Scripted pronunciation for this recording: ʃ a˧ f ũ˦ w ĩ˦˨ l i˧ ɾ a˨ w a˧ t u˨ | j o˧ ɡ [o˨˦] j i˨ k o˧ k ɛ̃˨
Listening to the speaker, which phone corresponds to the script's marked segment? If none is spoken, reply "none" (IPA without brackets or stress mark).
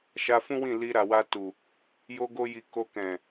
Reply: o˧